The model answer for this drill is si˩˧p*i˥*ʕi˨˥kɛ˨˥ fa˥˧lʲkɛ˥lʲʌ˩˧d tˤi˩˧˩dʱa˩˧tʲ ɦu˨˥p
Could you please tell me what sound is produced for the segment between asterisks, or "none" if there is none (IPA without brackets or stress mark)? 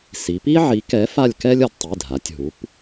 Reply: i˥